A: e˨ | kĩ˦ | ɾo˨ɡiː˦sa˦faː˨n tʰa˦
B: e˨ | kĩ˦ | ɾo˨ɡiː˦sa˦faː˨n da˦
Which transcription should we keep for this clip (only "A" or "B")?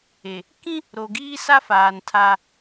A